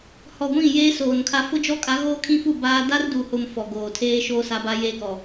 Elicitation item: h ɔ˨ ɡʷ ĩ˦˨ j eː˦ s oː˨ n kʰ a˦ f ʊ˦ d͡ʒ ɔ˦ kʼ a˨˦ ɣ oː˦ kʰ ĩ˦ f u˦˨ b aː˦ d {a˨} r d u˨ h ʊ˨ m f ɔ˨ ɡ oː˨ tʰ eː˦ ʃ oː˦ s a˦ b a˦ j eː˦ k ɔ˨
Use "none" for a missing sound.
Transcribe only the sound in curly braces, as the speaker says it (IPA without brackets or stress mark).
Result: a˦